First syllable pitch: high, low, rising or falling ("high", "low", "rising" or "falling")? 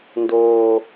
low